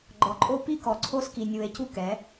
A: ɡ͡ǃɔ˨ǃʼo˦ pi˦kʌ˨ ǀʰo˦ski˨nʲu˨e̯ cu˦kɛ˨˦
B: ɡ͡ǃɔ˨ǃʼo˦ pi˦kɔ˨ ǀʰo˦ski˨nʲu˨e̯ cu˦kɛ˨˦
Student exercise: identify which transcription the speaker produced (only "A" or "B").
B